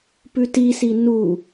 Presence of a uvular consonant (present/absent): absent